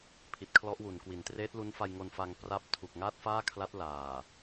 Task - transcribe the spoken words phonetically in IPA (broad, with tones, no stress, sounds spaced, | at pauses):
pʰ i˨˩ t̚ kʰ l ɔ˦˥ ʔ w u˩˦ n k w i˨˩ n t r eː˦˥ t̚ l u˦˥ n f a˧ j ŋ o˧ n f a˧ ŋ p r a˥˩ p̚ tʰ u˨˩ k̚ ŋ aː˥˩ t̚ f aː˥˩ kʰ l a˦˥ t̚ l aː˨˩